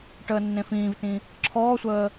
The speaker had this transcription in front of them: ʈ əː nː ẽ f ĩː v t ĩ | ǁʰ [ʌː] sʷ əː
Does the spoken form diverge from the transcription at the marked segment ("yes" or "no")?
yes